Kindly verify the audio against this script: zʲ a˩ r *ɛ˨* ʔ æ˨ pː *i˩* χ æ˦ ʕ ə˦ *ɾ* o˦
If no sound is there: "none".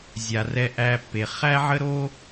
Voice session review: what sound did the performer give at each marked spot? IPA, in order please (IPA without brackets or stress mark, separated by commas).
ɛ˨, e˩, ɾ